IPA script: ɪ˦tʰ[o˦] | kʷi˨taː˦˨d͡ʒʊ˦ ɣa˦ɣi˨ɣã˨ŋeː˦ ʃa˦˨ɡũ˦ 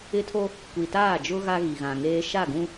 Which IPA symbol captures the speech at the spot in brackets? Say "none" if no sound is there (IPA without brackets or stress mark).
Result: o˦